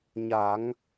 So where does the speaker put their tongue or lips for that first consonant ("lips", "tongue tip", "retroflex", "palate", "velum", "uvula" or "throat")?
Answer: palate